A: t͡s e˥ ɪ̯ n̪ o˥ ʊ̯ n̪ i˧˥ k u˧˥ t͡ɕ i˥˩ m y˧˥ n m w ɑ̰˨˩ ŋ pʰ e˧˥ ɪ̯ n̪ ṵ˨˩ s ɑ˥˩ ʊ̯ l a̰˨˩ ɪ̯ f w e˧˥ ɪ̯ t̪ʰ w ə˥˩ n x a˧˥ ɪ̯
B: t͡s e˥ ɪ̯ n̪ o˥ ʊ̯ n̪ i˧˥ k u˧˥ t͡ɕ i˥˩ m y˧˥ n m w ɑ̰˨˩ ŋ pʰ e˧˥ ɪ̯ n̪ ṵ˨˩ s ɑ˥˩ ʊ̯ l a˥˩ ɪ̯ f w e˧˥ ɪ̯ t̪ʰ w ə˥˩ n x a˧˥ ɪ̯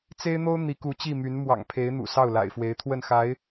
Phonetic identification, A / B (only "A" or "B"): A